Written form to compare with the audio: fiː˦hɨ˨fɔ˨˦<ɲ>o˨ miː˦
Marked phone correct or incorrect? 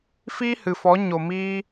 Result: correct